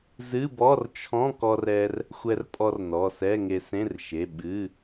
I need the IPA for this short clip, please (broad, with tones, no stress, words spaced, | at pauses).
zɨ˧˥˧bɔ˧˥˧rt͡ʃʰɔ̃˧˥˧kɔ˧r ɛ˧r | xʷɛ˧rpʼɔ˧r nɔ˩˧˩sɛ˧˥˧ ŋe˧sẽ˧˥˧rʃe˩˧˩ ɓɨ˩˧˩